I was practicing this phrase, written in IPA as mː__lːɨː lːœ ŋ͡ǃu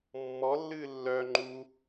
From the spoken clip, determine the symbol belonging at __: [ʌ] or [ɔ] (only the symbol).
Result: ɔ